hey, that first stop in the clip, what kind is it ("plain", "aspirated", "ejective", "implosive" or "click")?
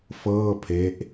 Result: aspirated